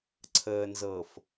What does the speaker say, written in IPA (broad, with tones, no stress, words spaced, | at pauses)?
ǀʰəː˨nzɤ˨f